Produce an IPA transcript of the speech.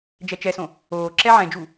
d͡ʒ ɛ t͡ʃ ɛ s õ | oː ǁ ɛ ʕ ɛ̃ d͡ʒ u

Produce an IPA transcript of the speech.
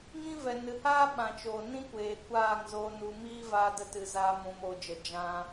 ŋ ĩ˦ v ɛ˨ n ɨ˨ h aː˦ ɓ ã˨ t͡ʃ oː˨ n ĩ˦ kʷ eː˨ kʷ aː˦˨ ŋ z oː˨ n u˧ m iː˦ v aː˧ d ə˧ t ɨ˨ z aː˧ m ũ˨ m oː˨ d͡ʒ ə˨ d͡ʒ ã˧

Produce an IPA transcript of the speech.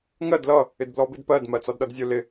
ŋ ɜ d l ʌ | ɪ d b l ɔ b ɪ d p ɜ d m ɜ t͡s ɒ d ɗ ʌ d zʲ ʊ l ɪ

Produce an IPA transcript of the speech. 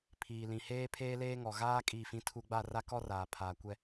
pʰ iː˨ l ĩ˨ h eː˦ pʰ eː˦ l eː˦ ŋ ɔ˨ ɣ aː˦ kʼ i˦˨ f ĩ˦ tʰ u˦ ɡ͡b a˦˨ r a˦ k ɔ˦ r aː˨ pʰ aː˨ kʷ ɛ˦

